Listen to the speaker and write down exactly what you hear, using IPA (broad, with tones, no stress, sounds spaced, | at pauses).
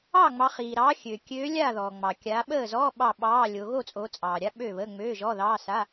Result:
ɑ˥˨ ŋ͡m ɑ˨˦ χ iː˩ ɾ ɑ˨˦ xʲ ø˩ kʲ øː˨˦ lʲ a˥˨ ð ɔː˩ ŋ͡m ɑ˩ kʲ a˨˦ ɓ əː˥˨ z ɔː˧˥˧ ɓ ɑ˥˨ ɓ ɑː˧˥˧ lʲ o˨˦ ɣ o˥˨ t͡sʼ o˨˦ t͡sʼ ɑː˩ ɾʲ a˧˥˧ ɓ ø˥˨ β əː˧˥˧ ŋ͡m øː˧˥˧ ʒ ɔ˧˥˧ ð ɑː˧˥˧ s a˧˥˧